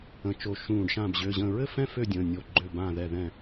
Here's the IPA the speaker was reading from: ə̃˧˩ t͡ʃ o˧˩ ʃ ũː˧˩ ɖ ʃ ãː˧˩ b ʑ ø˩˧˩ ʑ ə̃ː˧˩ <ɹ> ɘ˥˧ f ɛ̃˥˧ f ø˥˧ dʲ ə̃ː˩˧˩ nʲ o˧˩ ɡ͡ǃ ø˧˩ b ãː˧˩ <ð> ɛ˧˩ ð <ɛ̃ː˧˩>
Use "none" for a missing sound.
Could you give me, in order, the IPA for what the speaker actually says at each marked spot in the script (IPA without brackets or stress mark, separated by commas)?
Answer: ɹ, ð, ɛ̃˧˩